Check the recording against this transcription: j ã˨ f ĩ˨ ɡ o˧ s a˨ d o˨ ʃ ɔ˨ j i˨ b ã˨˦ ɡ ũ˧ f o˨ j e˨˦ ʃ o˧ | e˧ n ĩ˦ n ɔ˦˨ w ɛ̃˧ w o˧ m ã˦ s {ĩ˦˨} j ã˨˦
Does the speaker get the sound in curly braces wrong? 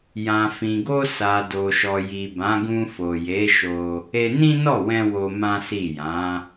yes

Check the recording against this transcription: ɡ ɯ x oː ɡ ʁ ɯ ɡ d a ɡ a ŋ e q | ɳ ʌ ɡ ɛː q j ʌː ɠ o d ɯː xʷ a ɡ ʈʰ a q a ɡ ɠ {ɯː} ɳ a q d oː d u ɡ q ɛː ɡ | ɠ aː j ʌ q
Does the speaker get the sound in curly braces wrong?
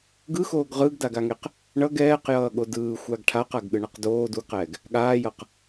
yes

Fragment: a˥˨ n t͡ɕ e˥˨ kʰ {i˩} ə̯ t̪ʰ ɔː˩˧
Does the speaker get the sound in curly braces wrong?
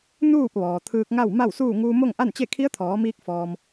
yes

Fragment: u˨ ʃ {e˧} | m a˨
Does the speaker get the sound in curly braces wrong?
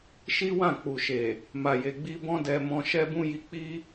yes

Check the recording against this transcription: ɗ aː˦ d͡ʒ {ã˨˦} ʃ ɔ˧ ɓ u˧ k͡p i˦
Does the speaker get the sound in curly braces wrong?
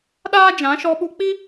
no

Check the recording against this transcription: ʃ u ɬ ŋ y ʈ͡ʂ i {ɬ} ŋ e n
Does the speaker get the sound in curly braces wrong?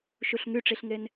no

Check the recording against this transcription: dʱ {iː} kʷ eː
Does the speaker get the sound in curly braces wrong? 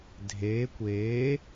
yes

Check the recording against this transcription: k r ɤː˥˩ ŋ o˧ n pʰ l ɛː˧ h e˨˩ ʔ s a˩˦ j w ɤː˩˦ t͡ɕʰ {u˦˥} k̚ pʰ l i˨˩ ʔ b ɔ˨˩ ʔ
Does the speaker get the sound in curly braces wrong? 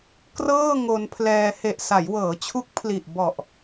no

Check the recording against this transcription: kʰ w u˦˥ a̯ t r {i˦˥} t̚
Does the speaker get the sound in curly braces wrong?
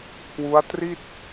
yes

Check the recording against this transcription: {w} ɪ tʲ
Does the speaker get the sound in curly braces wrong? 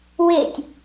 no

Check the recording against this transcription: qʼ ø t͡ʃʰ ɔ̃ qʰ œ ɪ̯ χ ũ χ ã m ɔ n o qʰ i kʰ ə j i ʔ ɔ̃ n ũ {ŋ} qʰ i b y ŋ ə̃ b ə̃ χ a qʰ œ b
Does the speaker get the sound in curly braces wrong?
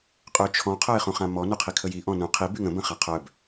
yes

